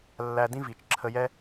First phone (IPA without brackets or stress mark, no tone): lː